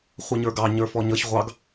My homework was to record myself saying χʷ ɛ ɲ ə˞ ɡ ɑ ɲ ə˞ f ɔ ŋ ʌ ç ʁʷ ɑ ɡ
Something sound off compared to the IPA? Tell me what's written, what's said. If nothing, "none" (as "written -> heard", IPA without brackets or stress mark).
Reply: ŋ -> ɲ